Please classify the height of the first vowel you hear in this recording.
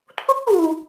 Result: high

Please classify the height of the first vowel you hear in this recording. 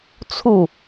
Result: high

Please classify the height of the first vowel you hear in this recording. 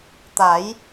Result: low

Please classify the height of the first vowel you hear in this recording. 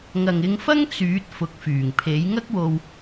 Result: low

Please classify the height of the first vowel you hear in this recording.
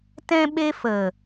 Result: mid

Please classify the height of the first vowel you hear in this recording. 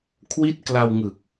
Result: high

